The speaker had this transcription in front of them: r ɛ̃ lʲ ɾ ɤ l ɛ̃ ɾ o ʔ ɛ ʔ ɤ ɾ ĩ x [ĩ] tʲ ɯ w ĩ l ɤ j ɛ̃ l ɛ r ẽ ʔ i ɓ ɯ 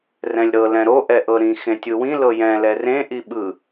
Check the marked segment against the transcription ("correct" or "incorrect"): incorrect